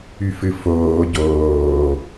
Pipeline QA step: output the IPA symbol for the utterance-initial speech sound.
y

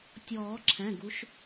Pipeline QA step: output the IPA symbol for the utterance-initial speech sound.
tʲ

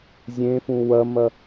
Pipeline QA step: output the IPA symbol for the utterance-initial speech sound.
zʲ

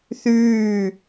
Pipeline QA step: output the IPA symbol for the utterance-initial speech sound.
θ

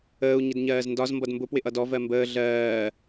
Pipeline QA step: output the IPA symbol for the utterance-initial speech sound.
əː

